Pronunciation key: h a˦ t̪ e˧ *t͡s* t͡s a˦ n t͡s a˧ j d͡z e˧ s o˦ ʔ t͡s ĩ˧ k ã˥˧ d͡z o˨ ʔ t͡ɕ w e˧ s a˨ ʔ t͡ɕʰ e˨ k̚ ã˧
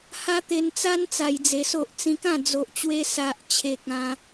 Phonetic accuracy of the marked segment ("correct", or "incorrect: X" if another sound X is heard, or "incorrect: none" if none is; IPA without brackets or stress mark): incorrect: n